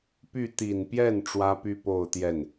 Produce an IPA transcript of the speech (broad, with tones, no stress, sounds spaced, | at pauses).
p y˥˩ t̪ i˨˩ n p j ɛ˥˩ n ʈ͡ʂ w ä˥ p y˥ p o˥˧ ʊ̯ t̪ j ɛ˥˩ n